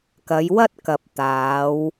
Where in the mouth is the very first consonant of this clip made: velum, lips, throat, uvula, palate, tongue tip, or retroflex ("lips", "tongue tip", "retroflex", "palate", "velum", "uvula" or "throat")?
velum